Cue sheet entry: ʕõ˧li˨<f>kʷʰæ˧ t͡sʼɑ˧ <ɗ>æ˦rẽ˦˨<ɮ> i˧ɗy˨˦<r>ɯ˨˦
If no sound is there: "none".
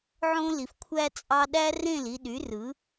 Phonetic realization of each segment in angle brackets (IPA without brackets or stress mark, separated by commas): f, ɗ, l, r